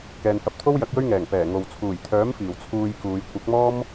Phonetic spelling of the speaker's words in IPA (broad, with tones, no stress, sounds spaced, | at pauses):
k ɛː˨ n h ɐ˧ p̚ t̪ʰ o˥ w j ɐ˨˥ k̚ j ɵ˥ ɥ ŋ ɛː˨˩ ŋ p ɛː˨˩ ŋ o˨ w t͡sʰ uː˨˩ j t̪ʰ œː˨˥ m f iː˨˩ w t͡sʰ uː˧ j k uː˨˧ j kʷ ɐ˨˥ k̚ m ɔː˥ m